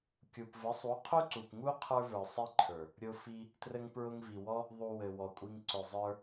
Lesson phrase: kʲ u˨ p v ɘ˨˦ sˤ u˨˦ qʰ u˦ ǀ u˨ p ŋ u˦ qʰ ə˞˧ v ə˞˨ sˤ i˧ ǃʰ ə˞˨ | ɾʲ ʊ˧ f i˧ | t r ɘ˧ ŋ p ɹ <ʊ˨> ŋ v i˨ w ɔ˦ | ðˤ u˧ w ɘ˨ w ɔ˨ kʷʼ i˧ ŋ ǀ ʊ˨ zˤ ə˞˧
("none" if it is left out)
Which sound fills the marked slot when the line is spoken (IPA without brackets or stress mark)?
ʊ˧